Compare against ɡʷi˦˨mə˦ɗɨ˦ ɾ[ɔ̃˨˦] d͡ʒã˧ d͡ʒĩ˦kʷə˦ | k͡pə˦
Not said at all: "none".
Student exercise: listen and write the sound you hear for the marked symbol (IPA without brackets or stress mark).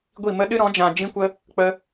ɔ̃˨˦